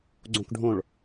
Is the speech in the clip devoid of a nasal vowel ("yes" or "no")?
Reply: no